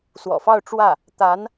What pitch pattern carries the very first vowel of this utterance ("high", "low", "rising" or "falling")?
low